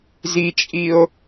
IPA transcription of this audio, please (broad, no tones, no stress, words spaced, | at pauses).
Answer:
zit͡ʃʼio̯